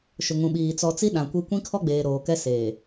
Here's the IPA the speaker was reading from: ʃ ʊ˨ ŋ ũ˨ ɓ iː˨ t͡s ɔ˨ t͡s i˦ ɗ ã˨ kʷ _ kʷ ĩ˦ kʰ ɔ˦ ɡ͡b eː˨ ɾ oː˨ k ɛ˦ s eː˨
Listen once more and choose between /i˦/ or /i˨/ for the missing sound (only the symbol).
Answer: i˦